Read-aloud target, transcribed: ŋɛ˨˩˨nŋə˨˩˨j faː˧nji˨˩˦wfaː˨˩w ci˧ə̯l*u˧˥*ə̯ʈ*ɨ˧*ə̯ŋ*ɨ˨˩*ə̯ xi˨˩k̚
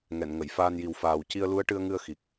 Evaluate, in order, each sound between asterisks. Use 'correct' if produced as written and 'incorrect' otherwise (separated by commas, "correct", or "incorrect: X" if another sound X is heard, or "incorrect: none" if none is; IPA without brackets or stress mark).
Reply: correct, correct, incorrect: ɨ˧